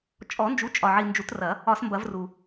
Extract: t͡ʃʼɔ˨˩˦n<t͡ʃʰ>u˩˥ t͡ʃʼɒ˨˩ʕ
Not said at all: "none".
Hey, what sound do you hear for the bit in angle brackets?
d͡ʒ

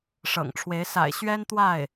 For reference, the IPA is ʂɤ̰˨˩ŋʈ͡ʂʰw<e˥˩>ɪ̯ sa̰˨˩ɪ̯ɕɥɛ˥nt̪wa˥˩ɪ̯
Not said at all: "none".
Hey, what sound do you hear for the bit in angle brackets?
e˧˥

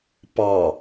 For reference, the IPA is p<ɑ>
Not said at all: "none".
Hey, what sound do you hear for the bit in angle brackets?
ɑ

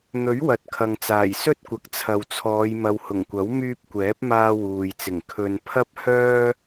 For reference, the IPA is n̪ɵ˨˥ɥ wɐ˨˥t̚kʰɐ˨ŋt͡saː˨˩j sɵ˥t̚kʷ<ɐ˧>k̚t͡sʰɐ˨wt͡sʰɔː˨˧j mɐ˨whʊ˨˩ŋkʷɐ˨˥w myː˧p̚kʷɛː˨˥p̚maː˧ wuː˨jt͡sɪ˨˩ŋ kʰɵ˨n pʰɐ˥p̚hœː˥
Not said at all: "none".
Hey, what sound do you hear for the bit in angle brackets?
ɐ˨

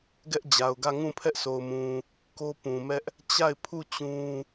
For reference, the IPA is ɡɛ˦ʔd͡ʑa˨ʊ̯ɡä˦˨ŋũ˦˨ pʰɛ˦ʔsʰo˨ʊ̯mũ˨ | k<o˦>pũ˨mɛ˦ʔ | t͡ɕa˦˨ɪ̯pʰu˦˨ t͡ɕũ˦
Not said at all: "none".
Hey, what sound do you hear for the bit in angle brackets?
o˦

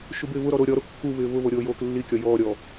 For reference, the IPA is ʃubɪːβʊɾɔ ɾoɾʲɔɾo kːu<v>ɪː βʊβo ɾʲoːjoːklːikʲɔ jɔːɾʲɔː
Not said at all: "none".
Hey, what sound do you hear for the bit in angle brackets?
β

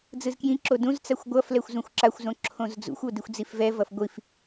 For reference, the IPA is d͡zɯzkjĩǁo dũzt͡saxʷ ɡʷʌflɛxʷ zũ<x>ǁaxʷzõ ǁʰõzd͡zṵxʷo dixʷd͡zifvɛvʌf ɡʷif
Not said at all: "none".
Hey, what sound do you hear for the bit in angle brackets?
xʷ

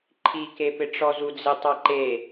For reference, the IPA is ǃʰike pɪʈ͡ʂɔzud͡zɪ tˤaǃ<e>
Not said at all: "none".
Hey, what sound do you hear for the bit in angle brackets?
e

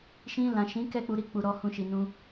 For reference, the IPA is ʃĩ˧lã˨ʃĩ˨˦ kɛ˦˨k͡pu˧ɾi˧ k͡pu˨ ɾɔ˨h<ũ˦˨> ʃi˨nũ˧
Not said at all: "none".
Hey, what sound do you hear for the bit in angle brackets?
ũ˨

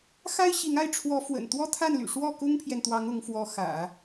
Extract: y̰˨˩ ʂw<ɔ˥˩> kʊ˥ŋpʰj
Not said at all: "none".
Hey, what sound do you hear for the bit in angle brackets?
ɔ˥˩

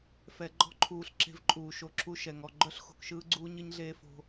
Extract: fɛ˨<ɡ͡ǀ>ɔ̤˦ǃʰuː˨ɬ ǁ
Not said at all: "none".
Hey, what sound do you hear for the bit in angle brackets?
ɡ͡ǃ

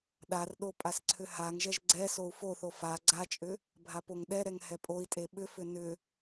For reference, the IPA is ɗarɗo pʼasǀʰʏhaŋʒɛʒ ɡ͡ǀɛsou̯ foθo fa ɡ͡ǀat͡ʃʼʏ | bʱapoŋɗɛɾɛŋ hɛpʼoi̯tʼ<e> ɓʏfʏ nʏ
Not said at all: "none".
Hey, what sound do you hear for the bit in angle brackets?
e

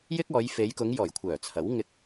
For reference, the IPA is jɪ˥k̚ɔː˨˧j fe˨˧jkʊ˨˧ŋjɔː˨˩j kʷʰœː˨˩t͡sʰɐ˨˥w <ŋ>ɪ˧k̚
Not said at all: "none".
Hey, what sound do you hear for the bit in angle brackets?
ŋ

